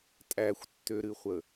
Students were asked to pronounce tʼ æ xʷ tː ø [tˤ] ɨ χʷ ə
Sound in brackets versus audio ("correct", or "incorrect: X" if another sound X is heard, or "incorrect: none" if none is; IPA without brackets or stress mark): incorrect: ɾ